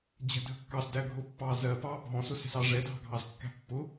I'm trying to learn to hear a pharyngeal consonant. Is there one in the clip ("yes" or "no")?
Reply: no